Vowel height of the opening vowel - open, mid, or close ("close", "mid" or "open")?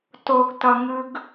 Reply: mid